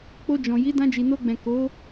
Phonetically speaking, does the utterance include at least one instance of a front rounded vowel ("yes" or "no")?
no